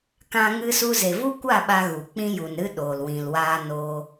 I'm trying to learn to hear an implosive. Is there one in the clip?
yes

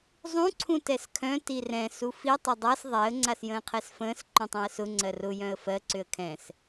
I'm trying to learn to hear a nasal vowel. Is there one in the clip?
yes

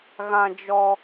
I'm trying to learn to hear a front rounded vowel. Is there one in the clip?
no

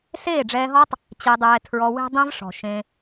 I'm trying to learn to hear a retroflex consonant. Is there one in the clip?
yes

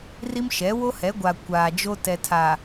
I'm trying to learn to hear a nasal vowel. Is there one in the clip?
no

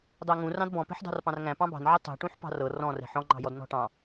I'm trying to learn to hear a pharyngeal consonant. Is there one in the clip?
yes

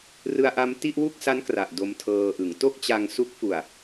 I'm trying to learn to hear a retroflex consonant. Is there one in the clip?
no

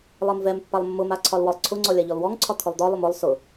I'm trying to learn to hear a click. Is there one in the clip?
yes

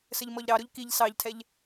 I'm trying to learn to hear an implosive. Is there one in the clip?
no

